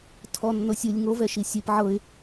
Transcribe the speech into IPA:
tʰ ɔ nː o sʲ ɯ lʲ ŋ o v ɛ ʃ i sʲ e p ʕ ɤ ɪ̯

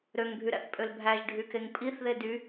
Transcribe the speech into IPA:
ɾ ø ŋ bʱ y ɾ æ̰ θ pʼ ø l bʱ æ ʒ ɖʱ y k e ŋ pʼ i θ ð e d y

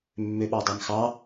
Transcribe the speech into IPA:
mː ø ɓ ɑ dˤ æ m x ɑ

